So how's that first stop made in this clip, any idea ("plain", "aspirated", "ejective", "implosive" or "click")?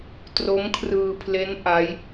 plain